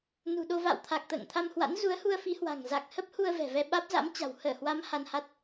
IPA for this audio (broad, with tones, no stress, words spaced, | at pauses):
nṳ˨˩ɗo˧ va̰˧˨wt̪ʰa˨˩k̚ t̪ə̰ː˧˨ŋ t̪ʰa˧mhwa̰˧˥n zu˨˦ə̯hu˧ə̯fi˨˦hwa̤˨˩ŋ za˨˩k̚ hə˦˥p̚hu˧ə̯ vɛ̤˨˩vɛ˧ ɓaː˦˥p̚za̰˧˥mt͡ɕa̤˨˩w həː˧˩hwa˨˦m ha˧nha˦˥t̚